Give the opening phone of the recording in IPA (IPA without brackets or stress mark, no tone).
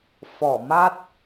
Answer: f